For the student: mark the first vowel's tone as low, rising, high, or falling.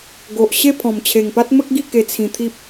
low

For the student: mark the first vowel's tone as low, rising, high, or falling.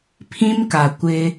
high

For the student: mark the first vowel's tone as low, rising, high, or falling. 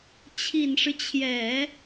low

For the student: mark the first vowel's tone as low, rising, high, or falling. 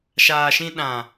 low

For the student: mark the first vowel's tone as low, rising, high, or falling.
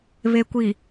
low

